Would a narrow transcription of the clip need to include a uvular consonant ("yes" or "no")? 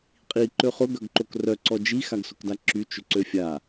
yes